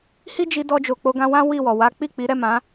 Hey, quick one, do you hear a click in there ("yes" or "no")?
no